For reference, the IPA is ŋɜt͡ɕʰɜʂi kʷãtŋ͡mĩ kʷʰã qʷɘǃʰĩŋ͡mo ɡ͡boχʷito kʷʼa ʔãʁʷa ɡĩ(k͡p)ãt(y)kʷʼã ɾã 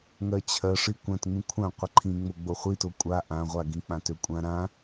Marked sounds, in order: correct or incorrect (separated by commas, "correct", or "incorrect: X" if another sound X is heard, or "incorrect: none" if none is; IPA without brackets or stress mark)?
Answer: correct, incorrect: ø